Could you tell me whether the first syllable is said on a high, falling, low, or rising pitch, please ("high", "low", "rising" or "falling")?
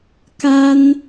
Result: high